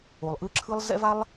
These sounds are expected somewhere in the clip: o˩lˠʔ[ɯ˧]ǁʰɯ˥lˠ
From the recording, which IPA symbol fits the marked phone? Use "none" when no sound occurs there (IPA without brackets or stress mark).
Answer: ɯ˥